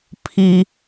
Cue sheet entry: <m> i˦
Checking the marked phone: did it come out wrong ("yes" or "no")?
yes